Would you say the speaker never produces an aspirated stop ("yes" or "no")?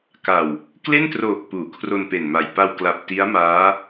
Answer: no